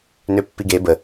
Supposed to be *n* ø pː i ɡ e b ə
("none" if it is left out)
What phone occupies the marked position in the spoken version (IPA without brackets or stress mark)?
n